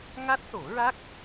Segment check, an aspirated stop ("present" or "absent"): absent